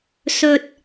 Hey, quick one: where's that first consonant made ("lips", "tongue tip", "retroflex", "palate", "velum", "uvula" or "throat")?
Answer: tongue tip